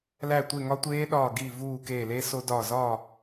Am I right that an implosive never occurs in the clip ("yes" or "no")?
no